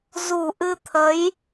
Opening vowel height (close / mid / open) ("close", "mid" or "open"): close